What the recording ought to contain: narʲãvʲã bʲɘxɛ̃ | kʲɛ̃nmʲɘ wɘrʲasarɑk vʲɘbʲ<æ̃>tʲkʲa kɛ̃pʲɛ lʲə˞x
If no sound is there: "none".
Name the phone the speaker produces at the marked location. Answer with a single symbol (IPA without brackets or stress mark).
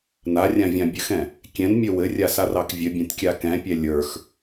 ã